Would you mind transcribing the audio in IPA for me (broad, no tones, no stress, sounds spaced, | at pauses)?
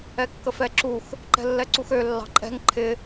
ɛ kː ə f ɛ ǁ u x | ǃ ɛ̤ lː ɛ ǀ u x ø lː ɑ̤ ǃʼ ɛ̤ ŋ ǃʰ ɪ